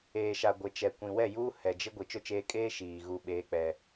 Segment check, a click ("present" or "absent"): absent